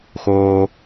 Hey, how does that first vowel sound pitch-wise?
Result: high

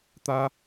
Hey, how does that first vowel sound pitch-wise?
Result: high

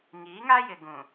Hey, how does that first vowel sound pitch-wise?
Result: rising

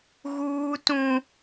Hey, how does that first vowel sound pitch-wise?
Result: high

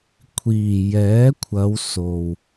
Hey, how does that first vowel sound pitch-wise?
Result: low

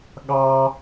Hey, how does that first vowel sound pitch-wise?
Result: high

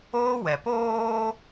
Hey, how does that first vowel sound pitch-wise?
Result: high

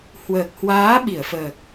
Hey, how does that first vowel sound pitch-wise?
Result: low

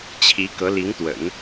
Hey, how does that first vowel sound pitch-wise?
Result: rising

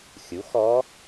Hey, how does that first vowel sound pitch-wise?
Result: rising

